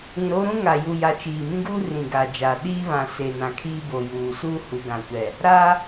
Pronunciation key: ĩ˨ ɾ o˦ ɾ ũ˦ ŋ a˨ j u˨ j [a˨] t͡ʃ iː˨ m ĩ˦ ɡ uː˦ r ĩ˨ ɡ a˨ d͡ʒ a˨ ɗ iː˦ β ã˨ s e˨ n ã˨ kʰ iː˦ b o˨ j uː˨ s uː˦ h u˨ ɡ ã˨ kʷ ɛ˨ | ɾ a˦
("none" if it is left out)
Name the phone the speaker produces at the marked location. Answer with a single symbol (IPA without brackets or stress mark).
a˨